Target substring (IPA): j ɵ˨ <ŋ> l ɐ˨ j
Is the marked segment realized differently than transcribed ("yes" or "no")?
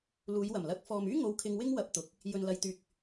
yes